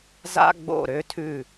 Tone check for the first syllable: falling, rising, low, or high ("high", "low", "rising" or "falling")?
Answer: high